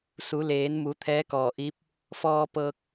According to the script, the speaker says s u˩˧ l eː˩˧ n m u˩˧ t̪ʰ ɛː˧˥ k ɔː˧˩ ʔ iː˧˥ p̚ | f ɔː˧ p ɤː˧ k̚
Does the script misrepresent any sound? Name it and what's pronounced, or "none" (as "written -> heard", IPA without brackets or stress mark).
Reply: none